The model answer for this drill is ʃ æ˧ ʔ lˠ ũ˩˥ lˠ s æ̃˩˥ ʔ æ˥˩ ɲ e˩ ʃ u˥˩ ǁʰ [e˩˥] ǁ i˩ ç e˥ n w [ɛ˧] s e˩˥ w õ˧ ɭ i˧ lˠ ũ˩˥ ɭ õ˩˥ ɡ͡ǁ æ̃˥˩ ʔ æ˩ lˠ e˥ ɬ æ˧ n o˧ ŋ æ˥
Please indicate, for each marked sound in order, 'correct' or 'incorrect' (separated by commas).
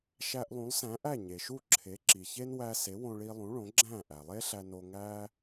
correct, incorrect